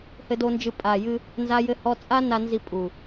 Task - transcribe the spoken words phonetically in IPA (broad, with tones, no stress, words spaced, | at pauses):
hɘ˧do˧nd͡ʒɨ˧ pʼa˨jɨ˧ | nza˧jɘ˧hɔ˧t͡sʼa˦ na˧nzi˧ pʼu˨